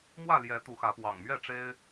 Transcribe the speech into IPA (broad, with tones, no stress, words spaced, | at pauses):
mwä˥˨ ljɛ˨˦ t̪u˨˦xä˨˦ pwɑ̰˨˩ŋ mɥɛ˥˨ʈ͡ʂe˦ɪ̯